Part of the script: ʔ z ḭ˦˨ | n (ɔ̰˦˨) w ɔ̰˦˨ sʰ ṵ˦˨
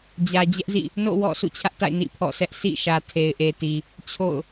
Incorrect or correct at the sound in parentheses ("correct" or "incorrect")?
incorrect